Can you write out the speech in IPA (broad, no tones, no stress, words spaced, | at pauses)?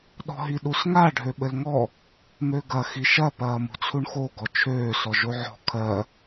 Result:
ɗɔ̤ɦiɗusŋa ɖʱøɓɘlŋɔ | møɡɐ xiʃɐ pɐːmṳt͡sʰuɳxo ɡɔt͡ʃʰøː sɔʒoʕɔ̤ kʰɜ